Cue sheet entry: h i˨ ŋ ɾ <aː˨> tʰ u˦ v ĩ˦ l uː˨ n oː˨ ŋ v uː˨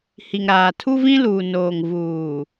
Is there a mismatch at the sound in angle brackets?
no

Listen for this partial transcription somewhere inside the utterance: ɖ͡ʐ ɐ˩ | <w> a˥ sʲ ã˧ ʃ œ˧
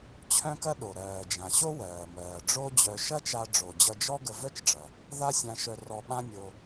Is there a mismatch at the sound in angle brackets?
yes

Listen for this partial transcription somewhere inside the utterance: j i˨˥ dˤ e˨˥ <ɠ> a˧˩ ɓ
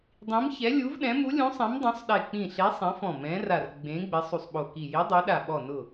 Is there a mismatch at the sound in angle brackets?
yes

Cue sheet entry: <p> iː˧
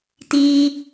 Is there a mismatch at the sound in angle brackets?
yes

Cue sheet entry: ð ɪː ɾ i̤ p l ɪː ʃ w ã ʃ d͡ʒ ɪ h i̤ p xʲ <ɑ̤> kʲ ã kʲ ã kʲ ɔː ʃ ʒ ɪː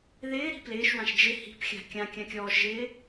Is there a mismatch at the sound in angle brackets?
yes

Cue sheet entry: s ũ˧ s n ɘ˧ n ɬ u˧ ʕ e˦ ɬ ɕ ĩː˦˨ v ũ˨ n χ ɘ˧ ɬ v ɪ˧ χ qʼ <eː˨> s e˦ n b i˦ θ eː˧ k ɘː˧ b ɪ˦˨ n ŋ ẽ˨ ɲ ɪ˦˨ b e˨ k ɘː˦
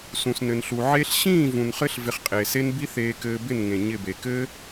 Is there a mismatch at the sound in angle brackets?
no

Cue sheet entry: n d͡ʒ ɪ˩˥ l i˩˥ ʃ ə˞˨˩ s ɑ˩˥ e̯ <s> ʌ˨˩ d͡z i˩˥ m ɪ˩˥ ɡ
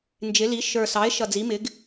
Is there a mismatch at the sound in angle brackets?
yes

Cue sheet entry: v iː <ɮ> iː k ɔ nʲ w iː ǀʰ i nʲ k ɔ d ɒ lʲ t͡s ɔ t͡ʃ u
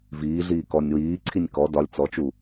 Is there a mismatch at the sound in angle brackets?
no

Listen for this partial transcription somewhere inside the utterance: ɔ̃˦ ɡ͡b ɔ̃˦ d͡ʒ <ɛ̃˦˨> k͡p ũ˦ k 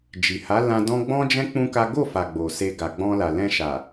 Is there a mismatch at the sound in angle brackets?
yes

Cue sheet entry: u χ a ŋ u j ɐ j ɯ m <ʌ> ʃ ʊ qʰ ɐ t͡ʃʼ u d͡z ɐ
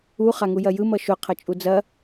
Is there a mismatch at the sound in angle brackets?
no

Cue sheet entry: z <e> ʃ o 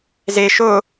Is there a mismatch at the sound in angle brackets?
no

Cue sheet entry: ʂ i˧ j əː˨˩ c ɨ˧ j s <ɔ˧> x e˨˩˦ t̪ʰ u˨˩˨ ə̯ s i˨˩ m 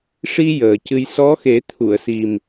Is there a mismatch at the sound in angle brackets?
yes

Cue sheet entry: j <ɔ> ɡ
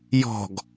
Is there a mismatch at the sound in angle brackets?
yes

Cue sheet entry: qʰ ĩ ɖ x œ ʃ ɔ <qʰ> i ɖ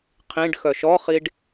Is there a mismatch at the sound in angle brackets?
yes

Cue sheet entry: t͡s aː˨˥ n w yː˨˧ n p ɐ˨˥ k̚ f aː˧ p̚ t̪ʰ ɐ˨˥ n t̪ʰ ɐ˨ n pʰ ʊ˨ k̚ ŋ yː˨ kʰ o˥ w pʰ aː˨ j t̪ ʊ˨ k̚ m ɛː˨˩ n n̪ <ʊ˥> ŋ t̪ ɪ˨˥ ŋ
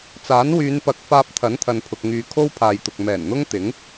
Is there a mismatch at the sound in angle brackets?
no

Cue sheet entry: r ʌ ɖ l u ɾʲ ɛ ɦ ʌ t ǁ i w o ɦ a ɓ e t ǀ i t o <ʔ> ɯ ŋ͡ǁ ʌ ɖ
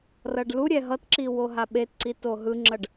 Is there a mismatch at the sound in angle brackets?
yes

